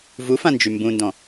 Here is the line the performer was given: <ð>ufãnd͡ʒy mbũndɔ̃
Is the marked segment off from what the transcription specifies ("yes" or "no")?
yes